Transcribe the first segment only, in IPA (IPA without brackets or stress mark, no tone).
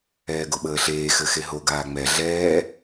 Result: ɛː